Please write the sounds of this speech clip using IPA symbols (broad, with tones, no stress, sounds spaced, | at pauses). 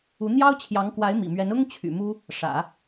u˧˥ n̪ j ɑ˥ ʊ̯ t͡ɕʰ j ɑ˧˥ ŋ k w a˧˥ ɪ̯ m ḭ˨˩ m ɥ ɛ˧˥ n ʊ˥ ŋ t͡ɕʰ y̰˨˩ m u˥ | ʂ ä̰˨˩˦